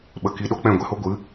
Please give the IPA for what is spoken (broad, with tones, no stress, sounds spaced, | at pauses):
ɓ ə˧ k i˧ ɗ o˦ k͡p ɛ̃˦˨ ɡʷ ɛ˧ h o˦ ɡʷ ɨ˨˦